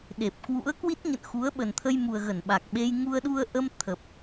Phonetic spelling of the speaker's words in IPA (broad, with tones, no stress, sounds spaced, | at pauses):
ɗ e˨˩ p̚ k w ṵ˧˥ ə̯ k w i˦˥ t̚ ɲ ə̰˧˨ n x u˨˦ ə̯ ɓ ə˨˩ n t̪ʰ ə˧ j m u˨˩ ə̯ ɣ ə˧˩ n ɓ a˨˩ k̚ ɓ e˧ j ŋ u˧ ə̯ ɗ u˧ ə̯ ʔ ə˧ m t̪ʰ ə˨˩ p̚